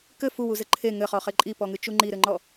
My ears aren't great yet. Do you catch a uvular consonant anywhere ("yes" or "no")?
yes